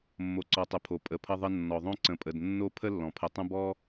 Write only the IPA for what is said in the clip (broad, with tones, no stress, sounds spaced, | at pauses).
mː o˨ ǀ ɔ˨ tˤ ə˨ pʰ o˩ pʼ ə˨ pʰ ʌ˦ ðˤ ə˦ nː ɔ˩ ðˤ õ˦ ǀ ə̃˨ pʼ ə˩ d nː o˦ pʰ ə˥ lː ɔ̃˩ pʰ ə˨ tˤ ə̃˦ b ɔ˦